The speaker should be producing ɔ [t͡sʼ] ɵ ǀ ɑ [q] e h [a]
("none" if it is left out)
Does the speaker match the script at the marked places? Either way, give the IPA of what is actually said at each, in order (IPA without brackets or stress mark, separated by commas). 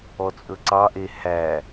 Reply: t͡sʼ, ʔ, æ